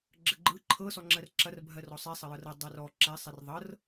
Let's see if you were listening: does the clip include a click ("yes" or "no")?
yes